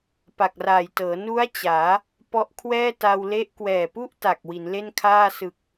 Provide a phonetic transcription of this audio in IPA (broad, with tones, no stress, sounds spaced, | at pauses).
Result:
p a˨˩ k̚ r aː˨˩ j t ɤː˩˦ n u˦˥ a̯ t͡ɕ aː˩˦ | p ɔ˦˥ ʔ kʰ w ɛː˥˩ t a˧ w l e˦˥ ʔ k w ɛː˨˩ p u˥˩ ʔ t a˨˩ k̚ w i˩˦ n l e˥˩ n kʰ aː˥˩ s ɯ˨˩ k̚